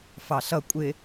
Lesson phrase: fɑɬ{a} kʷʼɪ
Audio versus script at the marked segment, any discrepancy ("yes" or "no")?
yes